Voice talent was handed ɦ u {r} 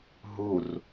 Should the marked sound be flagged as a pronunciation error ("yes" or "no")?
no